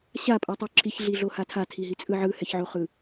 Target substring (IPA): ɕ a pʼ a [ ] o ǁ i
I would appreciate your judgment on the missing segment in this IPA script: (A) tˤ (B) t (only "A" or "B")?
A